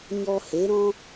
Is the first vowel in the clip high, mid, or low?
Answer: mid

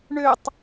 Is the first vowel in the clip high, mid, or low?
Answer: mid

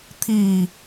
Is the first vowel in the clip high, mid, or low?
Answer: high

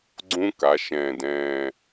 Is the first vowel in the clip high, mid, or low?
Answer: high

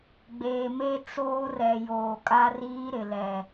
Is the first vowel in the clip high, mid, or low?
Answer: mid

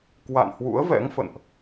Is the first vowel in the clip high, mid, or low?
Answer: low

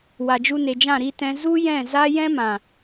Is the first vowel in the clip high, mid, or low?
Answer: low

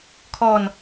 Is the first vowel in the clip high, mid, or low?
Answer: mid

